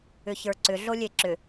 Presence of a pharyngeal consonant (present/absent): absent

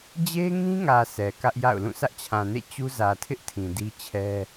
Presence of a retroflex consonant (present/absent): absent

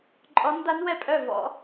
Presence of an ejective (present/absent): present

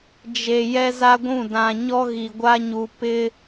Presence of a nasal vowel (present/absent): present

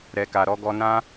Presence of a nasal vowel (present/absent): present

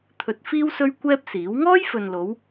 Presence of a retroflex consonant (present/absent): absent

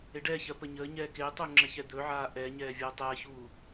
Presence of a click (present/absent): present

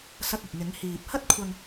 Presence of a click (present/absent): absent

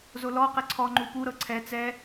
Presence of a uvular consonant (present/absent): present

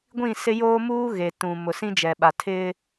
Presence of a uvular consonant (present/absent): absent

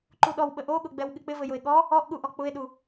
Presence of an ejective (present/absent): absent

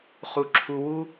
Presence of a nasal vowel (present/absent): absent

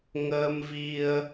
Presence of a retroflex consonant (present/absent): absent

